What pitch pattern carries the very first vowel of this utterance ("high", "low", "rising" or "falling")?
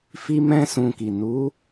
high